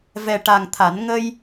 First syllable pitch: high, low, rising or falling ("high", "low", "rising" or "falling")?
low